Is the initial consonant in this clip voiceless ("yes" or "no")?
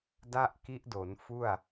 no